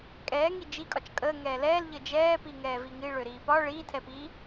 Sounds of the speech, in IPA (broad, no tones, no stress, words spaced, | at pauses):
kʼɛːŋi d͡ʒikʼɒt͡ʃ kʼəː ŋɛːlɛːl ʎəd͡ʒɛː piŋɛːviŋi ɭøɾiːpɒ ɭiːtʰɛpiː